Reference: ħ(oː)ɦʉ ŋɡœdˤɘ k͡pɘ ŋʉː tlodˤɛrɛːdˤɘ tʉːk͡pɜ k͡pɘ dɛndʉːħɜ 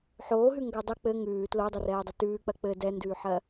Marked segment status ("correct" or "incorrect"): correct